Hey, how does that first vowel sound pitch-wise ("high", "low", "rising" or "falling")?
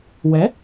rising